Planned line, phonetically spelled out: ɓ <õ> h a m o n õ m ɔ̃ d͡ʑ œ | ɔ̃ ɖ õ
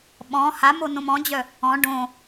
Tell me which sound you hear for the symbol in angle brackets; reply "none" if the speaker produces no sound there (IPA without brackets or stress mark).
ɔ̃